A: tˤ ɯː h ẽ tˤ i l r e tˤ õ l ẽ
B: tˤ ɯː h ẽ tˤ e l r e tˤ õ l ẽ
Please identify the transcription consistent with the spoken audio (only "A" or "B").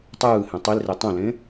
A